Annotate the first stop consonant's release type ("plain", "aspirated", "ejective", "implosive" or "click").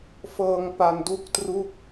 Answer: plain